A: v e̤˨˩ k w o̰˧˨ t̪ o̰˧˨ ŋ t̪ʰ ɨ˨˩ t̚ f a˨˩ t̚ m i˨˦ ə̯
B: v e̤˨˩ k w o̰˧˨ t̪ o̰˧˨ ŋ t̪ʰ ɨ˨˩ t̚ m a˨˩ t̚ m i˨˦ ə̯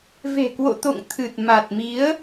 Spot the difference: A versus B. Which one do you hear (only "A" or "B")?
B